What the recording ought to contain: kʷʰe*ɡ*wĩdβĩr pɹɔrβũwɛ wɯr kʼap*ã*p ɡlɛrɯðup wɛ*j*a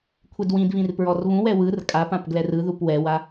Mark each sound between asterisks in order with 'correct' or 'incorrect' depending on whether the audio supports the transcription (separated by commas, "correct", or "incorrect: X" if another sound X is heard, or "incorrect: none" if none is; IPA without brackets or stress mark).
incorrect: d, correct, incorrect: w